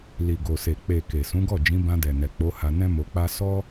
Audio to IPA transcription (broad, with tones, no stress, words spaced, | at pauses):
li˨ɡo˨se˨ k͡pe˨ ke˨ sũ˨˦ɡɔ˦˨ d͡ʒĩ˨˦bã˧dɛ˨ nɛ˨k͡po˨˦ha˧ nɛ̃˦mo˧k͡pa˦ sɔ˦